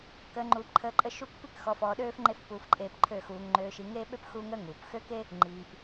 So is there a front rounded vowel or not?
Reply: yes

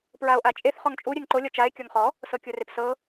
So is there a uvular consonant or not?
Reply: yes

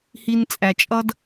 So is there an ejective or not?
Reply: yes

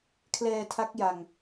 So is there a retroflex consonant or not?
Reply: no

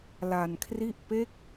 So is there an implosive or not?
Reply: no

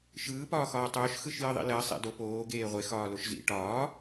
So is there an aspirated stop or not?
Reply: no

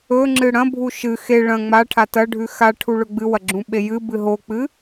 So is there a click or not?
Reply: yes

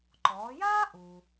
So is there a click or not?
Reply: yes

